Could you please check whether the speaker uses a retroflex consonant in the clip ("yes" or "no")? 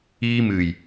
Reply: no